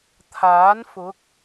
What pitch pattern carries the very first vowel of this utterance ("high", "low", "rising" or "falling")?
rising